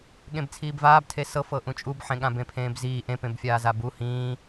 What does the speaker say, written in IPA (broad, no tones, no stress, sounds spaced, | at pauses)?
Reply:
ɠ ẽ b t͡sʰ iː b v aː b tʰ e s ɤ f ɤ ʔ ũ t͡ʃʼ u b ħ ẽ ɠ ã b ẽ pʰ ẽː b z iː ʔ ẽ p ẽ b fʲ aː z a b u h ĩː